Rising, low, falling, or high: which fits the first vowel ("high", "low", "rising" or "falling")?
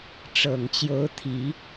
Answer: low